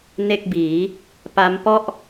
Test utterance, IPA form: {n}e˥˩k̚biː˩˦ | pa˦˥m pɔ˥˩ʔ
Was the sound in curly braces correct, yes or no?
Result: yes